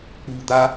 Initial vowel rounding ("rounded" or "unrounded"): rounded